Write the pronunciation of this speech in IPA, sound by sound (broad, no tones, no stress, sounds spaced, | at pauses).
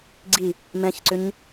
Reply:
ɡ͡ǀ i | m ɛ̃ ç ǀ ʏ ɲ